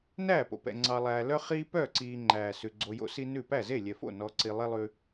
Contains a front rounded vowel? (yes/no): yes